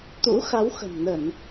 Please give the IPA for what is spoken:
t̪ ṵ˧˥ x a˨˦ w x ə̤˨˩ m n ə˧˩˨ n

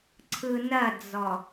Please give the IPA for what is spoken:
ǀʰ ɯ n ɐ d͡z ɔ

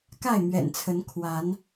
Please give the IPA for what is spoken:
k a˥˨ ɪ̯ m ɥ ɛ̰˨˩ n t͡sʰ ə˨˦ n kʰ w a˨˦ n

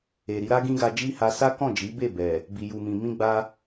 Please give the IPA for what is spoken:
e˨ ɾ i˨˦ ɾ a˦ ɡ ĩ˦ ɡ a˧ d͡ʒ i˦ h a˧ s a˦ k ɔ̃˦˨ d͡ʒ i˨˦ b e˦˨ b ɛ˨ | b i˨ j u˨ m ĩ˨ m ĩ˧ ɡ͡b a˧

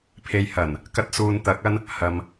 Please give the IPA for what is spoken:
pʰ e˧ j h ɐ˨˩ n | k ɐ˥ t̚ s uː˧ n t̪ ɐ˨˥ k̚ ɐ˥ n | h ɐ˨ m

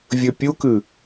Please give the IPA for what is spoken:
vʲ ɵ pʲ u k ɨ

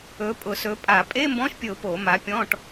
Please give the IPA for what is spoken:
ɵ˨˦ pʼ ʊ˧˩˧ s ɵ˨˦ pʼ a˧˩˧ pʼ e˧˥˧ m b ɔ̃˧˥˧ ʃ pʲ ɵ˧˩˧ ʊ̯ p o˧˩˧ m a˨˦ pʲ ɔ̃˧˥˧ ʈ

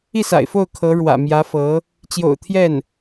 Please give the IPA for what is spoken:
i˥˩ s a̰˨˩ ɪ̯ f o˥˩ ʊ̯ kʰ ɤ˧˥ ɻ w ä̰˨˩ m j ä˧˥ f ɤ˧˥ | t͡ɕ j o̰˨˩ ʊ̯ t̪ʰ j ɛ˥˩ n

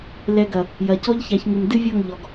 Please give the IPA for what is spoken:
l ɛ˨ ɡ ɐ˨ | j ɐ˨ c ɔ˦ ʎ ç a˨˦ ç ŋ ɨ˨ m d ɨ˦ vʲ ɔ˦˨ ŋ ʎ ɔ˨ ɡ

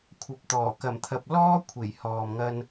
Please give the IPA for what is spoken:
kʷʰ ɐ˨ p̚ t̪ ɔː˨˩ k ɐ˨˩ m t̪ʰ ɐ˨ p̚ l ɔː˥ kʷʰ e˨˩ j h ɔː˨ m ŋ ɐ˧ n

